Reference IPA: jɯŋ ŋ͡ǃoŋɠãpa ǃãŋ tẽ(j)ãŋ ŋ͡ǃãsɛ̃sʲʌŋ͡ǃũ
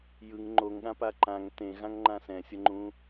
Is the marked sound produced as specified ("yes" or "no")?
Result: no